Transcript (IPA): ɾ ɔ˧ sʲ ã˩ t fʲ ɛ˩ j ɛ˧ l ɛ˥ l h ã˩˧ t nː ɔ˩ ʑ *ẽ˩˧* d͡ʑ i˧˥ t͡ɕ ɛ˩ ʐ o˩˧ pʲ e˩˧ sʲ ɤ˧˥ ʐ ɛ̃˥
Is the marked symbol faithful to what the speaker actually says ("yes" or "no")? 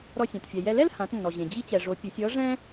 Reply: no